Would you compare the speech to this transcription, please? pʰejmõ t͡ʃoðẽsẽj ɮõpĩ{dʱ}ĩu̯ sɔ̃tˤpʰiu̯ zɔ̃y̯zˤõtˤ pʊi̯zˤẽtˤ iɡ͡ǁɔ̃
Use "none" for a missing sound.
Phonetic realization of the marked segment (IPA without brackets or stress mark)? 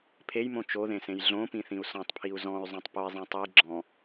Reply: θ